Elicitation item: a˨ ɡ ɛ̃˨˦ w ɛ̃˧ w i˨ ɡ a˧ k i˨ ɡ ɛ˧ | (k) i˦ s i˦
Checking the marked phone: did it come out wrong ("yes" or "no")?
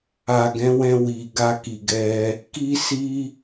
no